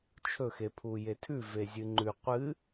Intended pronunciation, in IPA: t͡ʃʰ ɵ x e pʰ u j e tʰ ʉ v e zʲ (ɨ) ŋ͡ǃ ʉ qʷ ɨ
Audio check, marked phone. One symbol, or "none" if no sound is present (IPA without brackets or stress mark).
ɨ